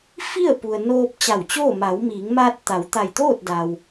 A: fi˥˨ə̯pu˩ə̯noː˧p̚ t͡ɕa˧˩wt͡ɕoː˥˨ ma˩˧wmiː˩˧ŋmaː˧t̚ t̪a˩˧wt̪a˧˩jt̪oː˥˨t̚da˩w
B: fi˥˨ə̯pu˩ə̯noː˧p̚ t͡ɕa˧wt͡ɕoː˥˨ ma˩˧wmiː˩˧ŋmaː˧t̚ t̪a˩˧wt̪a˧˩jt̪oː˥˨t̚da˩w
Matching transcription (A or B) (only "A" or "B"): A